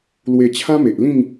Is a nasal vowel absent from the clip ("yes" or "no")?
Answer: no